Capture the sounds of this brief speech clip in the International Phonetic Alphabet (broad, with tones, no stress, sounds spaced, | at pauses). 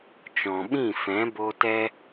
t͡ʃ ɔ̃˨ ɓ ĩ˦˨ f ɛ̃˨˦ b o˧ t ɛ˦